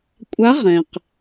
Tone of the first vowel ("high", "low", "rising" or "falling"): rising